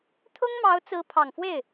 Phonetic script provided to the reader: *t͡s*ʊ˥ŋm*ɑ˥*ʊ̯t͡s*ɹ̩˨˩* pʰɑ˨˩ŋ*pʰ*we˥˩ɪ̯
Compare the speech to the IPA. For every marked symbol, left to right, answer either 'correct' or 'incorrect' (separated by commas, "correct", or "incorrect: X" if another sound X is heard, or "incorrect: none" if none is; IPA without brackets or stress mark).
incorrect: t̪ʰ, incorrect: ɑ˧˥, incorrect: ɹ̩˧˥, incorrect: f